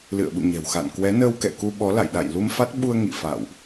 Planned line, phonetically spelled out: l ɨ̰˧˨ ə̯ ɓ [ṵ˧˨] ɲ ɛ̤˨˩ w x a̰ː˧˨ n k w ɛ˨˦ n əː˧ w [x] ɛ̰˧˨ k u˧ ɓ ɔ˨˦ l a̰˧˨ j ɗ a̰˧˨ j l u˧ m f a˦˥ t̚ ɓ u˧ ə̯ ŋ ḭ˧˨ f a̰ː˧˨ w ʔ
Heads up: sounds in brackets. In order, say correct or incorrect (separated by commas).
correct, incorrect